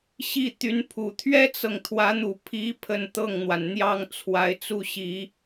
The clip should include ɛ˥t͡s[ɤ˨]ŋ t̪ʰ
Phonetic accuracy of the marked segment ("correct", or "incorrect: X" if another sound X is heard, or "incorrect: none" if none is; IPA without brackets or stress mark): correct